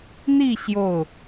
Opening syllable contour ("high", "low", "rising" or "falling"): falling